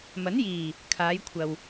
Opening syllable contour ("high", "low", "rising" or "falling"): rising